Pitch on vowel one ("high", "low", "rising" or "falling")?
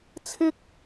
high